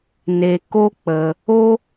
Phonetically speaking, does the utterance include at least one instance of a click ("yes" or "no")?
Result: no